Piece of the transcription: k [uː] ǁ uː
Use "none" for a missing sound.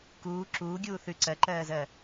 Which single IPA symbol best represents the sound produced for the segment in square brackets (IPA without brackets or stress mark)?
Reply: uː